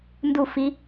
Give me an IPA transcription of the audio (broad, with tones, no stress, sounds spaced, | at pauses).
n d u˦˨ f i˦